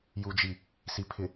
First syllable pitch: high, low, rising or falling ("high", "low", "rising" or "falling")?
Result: low